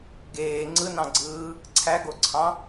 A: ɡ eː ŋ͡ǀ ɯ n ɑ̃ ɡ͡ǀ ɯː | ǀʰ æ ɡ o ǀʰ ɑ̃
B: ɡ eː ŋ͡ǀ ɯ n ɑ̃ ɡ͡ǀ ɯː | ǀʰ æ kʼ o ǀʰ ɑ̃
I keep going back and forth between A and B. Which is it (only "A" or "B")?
A